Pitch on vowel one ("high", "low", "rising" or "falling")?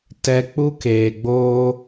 high